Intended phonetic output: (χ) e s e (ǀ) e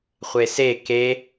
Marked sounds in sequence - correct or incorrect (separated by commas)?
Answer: incorrect, incorrect